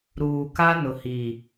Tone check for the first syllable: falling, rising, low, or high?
low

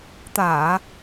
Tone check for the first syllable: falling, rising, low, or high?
low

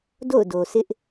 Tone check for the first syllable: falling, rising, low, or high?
falling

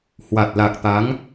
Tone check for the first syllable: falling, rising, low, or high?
low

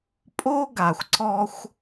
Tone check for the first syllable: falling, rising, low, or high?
high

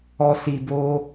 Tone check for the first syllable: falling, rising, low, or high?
high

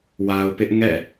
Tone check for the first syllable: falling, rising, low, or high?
low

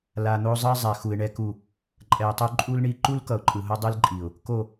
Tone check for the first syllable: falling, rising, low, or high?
low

